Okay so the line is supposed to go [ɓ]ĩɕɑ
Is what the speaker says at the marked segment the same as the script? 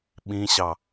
yes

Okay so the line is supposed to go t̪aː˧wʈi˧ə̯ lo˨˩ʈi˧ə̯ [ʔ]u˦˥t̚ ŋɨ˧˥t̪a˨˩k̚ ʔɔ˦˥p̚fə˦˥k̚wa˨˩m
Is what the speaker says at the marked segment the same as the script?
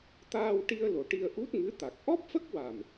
yes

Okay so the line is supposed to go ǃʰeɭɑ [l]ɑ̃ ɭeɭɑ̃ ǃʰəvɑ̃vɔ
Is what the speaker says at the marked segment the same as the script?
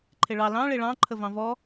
yes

